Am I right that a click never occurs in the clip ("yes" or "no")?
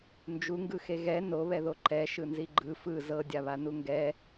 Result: no